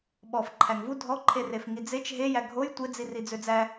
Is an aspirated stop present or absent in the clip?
present